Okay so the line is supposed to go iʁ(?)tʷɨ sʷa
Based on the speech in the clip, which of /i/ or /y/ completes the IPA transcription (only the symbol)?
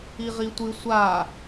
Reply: i